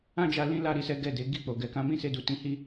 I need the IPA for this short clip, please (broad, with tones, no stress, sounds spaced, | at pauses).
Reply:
ã˦ d͡ʒ a˧ l ĩ˦ l a˦˨ ɾ i˧ s ɛ˦ ɡ ɛ˦˨ d e˨˦ ɡ i˦˨ k͡p o˨ ɡ ɛ˨ k ã˧ m ĩ˦ s e˧ d u˨ t ĩ˨˦ h i˦